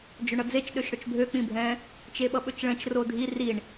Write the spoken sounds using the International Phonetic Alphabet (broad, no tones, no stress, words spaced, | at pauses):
d͡ʒøɳʌd͡zet͡ʃ ɗøʃɽɵt͡ʃbʱø k͡pĩbʱɛ̃ | t͡ʃeɓʌɓɵt͡ʃɭɛ̃t͡ʃ rodʱi riɳ